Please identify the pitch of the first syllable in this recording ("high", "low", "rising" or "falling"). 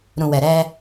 low